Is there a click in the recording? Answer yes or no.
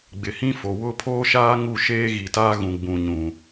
no